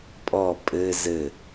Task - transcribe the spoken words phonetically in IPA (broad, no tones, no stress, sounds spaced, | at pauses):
pʼ ɔ pʼ ɘ z ɘ